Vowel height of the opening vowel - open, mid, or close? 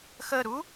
mid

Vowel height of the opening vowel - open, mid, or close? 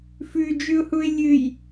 close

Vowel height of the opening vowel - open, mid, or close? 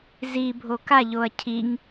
close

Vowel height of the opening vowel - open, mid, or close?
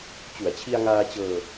close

